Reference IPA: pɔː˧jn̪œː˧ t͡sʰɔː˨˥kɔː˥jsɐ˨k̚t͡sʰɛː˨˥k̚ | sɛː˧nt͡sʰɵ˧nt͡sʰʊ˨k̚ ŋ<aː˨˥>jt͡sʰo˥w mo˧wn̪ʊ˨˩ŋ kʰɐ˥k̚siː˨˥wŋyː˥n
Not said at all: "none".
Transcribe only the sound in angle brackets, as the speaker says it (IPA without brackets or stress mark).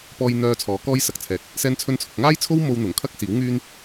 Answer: aː˥